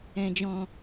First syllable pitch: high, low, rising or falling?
low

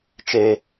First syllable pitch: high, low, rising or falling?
high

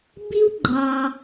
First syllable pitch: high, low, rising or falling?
high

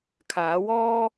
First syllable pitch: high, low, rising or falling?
rising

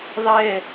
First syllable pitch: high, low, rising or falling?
falling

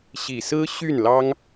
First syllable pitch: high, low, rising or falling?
low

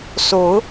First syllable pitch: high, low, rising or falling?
rising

